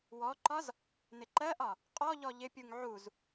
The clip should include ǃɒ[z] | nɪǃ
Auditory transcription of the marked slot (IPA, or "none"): z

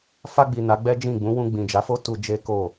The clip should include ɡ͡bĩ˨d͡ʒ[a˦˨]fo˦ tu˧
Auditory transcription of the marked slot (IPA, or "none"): a˨˦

